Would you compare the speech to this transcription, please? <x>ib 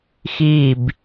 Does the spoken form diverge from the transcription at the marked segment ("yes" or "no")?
no